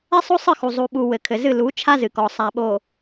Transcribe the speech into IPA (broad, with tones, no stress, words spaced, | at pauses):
ɛ˦sˤo˦sˤɨ˦˨xu˨ zˤu˨ɓu˨ wɘ˨kʰɘ˨ zɨ˦˨ lu˨˦ t͡ʃʰa˦zɨ˨kɔ˨ sˤa˨ɓo˨